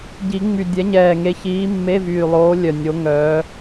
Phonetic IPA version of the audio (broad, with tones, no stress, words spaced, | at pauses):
ɟi˨˩˦ŋ͡my˨˩ dʲɛ˨˦ɲɛː˨˩ ŋe˨˦çiː˨˦ mːe˧˥˧vyː˨˩lˠoː˨˦ lʲœ˨˩ nʲo˨˦ŋœː˨˦